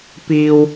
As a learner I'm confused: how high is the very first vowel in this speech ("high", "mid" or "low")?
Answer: high